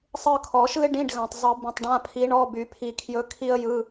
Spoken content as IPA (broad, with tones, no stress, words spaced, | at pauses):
sˤɯ˦˨kʰɔ˨˩˦ʃɯ˥ɪ̯ ɖĩ˧˥˧ɖɣã˨tˤ zˤɯ˨˩˦ bĩ˨tˤɖã˧˥˧pʰi˧˥ɳɔ˧˥˧ by˨˩˦pʰi˨kʰjɵ˧˥ kʰi˥ə̯jɯ˧˥˧